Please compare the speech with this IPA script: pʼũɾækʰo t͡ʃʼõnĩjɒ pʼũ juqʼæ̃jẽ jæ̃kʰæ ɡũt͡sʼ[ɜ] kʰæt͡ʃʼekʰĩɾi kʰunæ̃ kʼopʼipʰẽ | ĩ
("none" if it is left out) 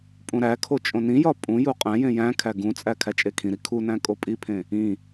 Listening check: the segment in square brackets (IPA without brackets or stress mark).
æ